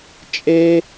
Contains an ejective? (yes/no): yes